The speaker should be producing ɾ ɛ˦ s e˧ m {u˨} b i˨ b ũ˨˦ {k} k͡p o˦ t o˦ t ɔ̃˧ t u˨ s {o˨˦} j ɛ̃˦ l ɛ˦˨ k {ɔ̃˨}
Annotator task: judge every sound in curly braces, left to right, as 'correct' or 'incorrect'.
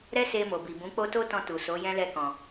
incorrect, incorrect, correct, correct

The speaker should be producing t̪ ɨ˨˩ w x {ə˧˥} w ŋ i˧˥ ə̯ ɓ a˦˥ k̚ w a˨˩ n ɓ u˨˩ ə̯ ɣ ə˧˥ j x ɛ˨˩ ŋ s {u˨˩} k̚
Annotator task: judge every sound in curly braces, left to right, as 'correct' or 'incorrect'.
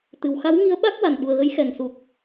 incorrect, correct

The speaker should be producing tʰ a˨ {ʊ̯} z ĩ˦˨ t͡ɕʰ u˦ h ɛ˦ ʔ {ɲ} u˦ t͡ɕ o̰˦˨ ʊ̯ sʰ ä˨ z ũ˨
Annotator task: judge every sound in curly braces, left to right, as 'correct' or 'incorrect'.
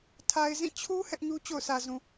incorrect, correct

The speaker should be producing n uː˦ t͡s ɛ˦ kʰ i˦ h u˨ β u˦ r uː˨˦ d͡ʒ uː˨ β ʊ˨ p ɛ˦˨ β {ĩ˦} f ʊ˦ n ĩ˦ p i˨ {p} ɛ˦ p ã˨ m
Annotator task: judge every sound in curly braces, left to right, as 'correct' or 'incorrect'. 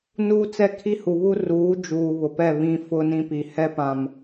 correct, incorrect

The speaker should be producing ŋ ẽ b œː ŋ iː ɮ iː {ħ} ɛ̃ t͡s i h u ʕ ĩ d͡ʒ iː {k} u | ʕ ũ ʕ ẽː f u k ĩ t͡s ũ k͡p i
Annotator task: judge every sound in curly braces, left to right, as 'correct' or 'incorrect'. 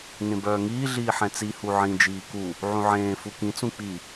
correct, correct

